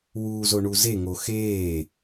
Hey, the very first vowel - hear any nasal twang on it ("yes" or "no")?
no